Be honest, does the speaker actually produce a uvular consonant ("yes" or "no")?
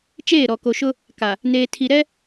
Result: no